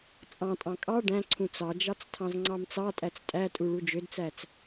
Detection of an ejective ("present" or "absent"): present